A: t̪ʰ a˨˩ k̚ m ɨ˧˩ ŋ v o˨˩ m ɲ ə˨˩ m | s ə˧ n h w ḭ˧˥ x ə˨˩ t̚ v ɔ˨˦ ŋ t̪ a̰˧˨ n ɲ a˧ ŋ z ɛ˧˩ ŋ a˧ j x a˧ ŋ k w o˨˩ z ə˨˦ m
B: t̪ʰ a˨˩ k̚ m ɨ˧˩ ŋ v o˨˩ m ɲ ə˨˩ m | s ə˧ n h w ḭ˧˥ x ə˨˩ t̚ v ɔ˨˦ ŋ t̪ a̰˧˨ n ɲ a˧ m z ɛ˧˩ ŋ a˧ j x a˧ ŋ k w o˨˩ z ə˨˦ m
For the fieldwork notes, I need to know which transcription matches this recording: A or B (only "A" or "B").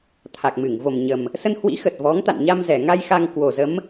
B